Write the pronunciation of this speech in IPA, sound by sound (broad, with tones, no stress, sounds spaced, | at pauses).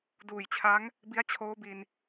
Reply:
d uː˨˩ j t͡ɕʰ a˦˥ ŋ | b i˦˥ a̯ t͡ɕʰ oː˦˥ b i˧ n